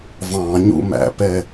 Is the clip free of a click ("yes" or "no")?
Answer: yes